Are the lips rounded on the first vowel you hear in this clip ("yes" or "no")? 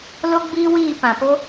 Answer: yes